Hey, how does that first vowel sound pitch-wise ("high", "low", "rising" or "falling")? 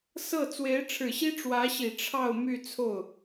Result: falling